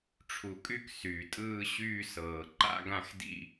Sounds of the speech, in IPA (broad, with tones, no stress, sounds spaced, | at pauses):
ʈ͡ʂʰ u˩ kʼ y˥˧ k s yː˩ tʼ ɯː˥˧ ɕ yː˥˧ s ɤː˩ ǃ a̰˥˧ ɡ ã˥˧ x d ḭ˥˧